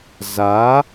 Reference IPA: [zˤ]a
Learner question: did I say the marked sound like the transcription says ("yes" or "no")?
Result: no